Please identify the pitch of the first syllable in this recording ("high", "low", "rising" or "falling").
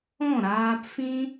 falling